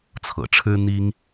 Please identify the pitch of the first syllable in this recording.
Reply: low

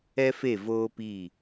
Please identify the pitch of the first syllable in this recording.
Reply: high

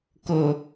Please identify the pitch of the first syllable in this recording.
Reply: low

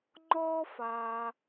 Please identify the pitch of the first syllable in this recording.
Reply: high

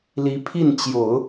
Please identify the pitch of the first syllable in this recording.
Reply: rising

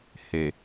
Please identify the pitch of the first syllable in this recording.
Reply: low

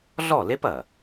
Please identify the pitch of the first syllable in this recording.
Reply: falling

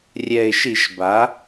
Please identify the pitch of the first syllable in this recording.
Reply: low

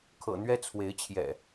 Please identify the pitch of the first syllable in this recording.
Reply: low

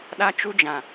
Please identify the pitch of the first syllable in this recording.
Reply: high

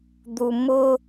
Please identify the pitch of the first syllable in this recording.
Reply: high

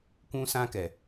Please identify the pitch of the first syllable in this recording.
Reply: high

